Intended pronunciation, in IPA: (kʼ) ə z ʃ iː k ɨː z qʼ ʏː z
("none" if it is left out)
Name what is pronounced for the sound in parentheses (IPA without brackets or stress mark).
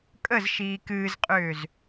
kʼ